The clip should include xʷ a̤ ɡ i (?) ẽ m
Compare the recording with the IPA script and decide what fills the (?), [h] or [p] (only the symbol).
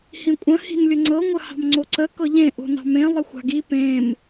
p